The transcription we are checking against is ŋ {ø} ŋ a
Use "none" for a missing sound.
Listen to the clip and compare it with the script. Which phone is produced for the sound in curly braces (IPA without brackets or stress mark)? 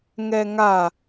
ɛ